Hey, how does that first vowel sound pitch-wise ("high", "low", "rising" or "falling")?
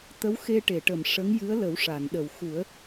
rising